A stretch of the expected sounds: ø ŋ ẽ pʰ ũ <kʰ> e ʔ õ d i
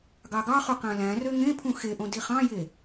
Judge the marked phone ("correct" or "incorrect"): incorrect